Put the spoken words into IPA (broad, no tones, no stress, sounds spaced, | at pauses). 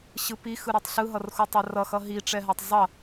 ɕ ɯ p i x ɯ ɾ i tˤ ɬ ɯ ɦ ʌ r x u tˤ a r ʌ x ʌ ɦ i ʈ͡ʂ ɛ ɦ a tˤ zˤ ʌ